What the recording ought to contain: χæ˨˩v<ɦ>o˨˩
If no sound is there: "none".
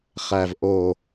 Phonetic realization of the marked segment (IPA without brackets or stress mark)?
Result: ʔ